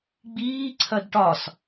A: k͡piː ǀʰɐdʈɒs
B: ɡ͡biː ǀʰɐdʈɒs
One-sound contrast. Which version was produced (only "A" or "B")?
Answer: B